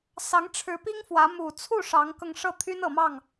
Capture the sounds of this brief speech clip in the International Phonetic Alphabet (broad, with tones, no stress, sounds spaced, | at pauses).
s ɑ˧˥ ŋ ʈ͡ʂʰ ɻ̩˧˥ p i˥ ŋ f w ä˧˥ m u˨˩ t͡sʰ u˥˩ ʂ ɑ˧˥ ŋ k ɤ˧ ŋ ʂ ɤ˥˩ t̪ʰ y˥ n ɤ˨˩ m ɑ˥˩ ŋ